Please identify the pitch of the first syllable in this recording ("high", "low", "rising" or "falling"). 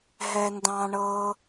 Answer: high